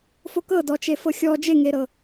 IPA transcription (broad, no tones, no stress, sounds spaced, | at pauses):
f o k ɤ d ɔ t͡ʃ e f ɤ xʲ ɔ d͡ʒ e ŋ e ɾ ɤ